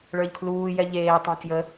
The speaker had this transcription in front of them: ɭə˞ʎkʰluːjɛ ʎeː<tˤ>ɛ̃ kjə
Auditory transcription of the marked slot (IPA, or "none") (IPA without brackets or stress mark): tˤ